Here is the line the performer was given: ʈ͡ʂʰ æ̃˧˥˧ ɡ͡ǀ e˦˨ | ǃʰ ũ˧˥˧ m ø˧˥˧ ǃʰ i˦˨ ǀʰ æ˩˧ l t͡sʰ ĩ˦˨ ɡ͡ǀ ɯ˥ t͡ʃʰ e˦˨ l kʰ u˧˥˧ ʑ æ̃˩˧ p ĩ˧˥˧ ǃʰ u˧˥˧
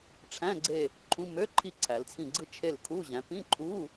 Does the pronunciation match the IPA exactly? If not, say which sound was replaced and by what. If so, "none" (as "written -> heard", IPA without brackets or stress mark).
none